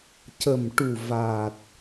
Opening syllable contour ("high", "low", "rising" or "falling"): low